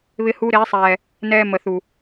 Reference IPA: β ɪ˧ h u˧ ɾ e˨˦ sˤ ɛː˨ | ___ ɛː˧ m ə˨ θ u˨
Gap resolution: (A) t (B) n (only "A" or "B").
B